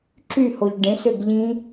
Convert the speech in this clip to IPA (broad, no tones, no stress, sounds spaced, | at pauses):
ǁ y h o ʎ ɖ ẽ s ø ɡ ʎ ĩ